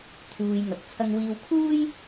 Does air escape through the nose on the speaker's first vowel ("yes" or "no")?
no